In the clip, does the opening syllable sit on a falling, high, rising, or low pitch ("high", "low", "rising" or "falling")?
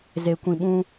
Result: low